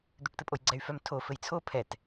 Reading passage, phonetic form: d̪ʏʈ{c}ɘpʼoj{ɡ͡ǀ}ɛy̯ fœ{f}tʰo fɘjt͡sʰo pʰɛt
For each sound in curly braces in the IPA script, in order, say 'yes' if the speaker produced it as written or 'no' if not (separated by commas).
no, yes, no